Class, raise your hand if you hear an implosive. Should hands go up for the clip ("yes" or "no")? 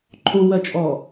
no